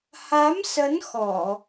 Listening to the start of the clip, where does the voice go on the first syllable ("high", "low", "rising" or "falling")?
rising